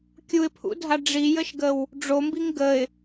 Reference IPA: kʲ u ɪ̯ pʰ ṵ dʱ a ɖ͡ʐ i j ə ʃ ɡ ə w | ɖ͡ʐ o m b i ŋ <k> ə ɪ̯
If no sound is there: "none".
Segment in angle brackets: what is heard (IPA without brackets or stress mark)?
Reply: ɡ